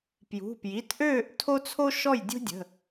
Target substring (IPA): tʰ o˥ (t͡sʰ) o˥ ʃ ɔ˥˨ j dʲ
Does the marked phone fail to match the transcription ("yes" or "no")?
no